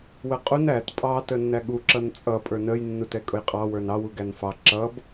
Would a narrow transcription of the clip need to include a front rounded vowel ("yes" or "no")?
no